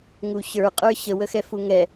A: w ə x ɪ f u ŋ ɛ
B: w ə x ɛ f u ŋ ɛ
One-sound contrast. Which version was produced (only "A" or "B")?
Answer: B